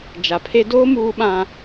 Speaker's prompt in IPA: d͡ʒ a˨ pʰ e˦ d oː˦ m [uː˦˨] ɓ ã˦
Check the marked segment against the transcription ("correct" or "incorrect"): incorrect